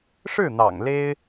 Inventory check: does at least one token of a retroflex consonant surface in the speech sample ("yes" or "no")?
yes